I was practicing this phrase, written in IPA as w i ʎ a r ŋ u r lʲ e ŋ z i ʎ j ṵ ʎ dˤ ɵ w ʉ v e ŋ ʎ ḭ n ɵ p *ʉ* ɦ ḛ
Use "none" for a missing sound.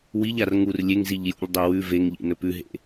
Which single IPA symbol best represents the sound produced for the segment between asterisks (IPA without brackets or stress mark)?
ʉ